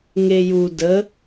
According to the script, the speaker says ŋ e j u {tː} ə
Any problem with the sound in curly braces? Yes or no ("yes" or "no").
yes